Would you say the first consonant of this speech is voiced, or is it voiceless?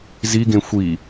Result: voiced